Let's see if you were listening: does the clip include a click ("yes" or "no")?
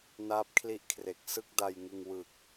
no